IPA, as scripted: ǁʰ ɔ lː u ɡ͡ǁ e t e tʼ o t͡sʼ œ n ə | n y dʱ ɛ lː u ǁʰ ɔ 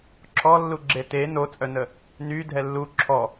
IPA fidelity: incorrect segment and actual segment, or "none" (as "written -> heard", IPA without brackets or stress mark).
tʼ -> n